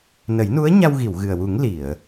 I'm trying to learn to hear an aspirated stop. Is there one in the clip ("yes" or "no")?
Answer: no